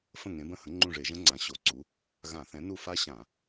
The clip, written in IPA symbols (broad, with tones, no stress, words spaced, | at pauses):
fə̃˦˨ŋẽ˨˦bə̃˦˨hə̃˨˦ ŋ͡ǃũ˦˨ʐe˧˩˧ʒə̃˦˥ŋ͡ǀã˨˦ ɕo˨˦ǀu˨˦ | ɣã˧˩˧θɛ̃˨˦nu˦˨ fa˦˥ɕã˧˩˧